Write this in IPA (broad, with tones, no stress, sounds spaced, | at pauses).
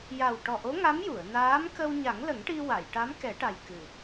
j a˨˩ w ʈ ɔ˨˩ ʔ o˧˥ ŋ a˧˥ m j u˨˩˨ ə̯ n aː˧˥ m k ə˧ w ɲ a˨˩˦ ŋ l ə˨˩˦ ŋ ʈ i˧ w a˨˩˨ j ʈ a˧˥ m k ɛ˨˩˦ ʈ a˨˩ j k ɨ˨˩